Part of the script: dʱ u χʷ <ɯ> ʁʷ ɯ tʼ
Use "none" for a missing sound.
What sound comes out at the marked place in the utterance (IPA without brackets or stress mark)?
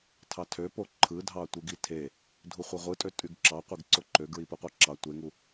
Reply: ɯ